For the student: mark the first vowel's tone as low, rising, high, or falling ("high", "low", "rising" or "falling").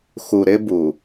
low